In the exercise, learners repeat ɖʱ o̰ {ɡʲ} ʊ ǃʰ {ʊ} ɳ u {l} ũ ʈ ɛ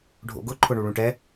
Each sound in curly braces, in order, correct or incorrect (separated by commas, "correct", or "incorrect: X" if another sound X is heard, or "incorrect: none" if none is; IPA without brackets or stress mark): incorrect: ɡ, correct, incorrect: ɭ